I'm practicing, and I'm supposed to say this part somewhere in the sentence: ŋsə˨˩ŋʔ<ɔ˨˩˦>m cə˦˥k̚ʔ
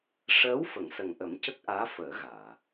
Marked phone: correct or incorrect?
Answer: incorrect